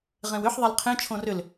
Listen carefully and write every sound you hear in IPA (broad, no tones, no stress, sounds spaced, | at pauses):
ʁ ẽ w ʏ ħ ðˤ ɛ l qʰ ẽ t͡ʃʰ õ r ʏ l